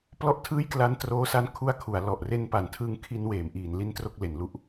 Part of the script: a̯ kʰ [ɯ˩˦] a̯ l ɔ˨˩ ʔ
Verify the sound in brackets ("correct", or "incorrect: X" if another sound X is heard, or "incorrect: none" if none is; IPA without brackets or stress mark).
incorrect: u˩˦